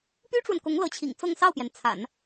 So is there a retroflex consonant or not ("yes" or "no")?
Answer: yes